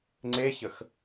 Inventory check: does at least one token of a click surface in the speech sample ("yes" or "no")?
yes